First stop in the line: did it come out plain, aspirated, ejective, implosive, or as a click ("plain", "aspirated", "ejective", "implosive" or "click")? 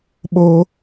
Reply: implosive